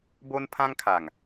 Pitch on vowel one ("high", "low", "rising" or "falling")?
high